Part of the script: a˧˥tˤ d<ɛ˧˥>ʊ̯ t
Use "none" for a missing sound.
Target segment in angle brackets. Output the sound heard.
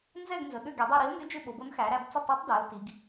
ɛ˩˧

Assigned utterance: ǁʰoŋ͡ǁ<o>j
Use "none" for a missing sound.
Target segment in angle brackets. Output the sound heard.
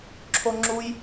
u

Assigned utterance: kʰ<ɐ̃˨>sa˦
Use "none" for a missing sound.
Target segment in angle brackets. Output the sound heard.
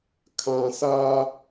ã˨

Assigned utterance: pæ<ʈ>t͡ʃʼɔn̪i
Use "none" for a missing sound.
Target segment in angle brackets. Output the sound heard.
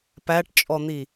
ʈ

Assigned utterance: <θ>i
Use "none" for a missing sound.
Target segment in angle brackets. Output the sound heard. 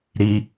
ɾ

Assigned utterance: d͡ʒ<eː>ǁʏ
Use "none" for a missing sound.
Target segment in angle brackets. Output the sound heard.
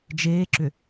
eː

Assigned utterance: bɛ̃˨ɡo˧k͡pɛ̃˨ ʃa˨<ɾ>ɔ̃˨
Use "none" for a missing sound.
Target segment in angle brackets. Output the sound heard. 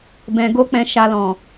l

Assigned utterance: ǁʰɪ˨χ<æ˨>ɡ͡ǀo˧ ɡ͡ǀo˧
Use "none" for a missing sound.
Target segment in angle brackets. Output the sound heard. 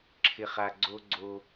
a˨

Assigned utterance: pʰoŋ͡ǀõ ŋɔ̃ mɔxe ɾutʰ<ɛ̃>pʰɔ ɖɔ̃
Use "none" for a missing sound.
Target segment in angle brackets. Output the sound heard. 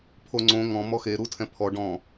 ɛ̃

